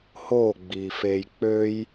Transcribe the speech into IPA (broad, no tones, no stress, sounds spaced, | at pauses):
h oː ɡ͡b iː f eː j k͡p ø j